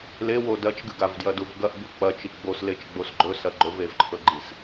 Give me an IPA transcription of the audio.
l e w o d ɐ t͡ʃ ɡ ɨ ɡ a v d j ɐ d u v ɡ ɐ ʔ b u k͡p ɐ t͡ʃ i ɡ͡b o s l e t͡ʃ ɡ͡b o s ɡ͡ǃ ɵ s ɐ ɡ͡ǃ ɵ v e v ǃʰ ɵ ɡ͡ǃ i s

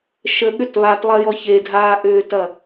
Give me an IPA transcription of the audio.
ʃ ə ɠ ʏ t β a t lˠ ɐ j ɔ ç e dʱ aː ʔ ʏː t ɐ

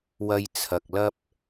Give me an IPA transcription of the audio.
w ɐ˧ j t͡sʰ ɐ˨ k̚ l ɐ˥ p̚

